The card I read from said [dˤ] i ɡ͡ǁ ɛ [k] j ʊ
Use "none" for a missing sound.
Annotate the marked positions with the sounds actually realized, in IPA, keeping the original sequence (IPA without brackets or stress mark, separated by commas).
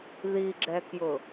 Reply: ð, k